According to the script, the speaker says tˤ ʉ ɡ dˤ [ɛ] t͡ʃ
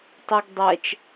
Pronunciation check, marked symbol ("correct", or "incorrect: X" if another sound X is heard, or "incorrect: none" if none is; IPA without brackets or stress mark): correct